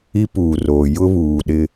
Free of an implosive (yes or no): no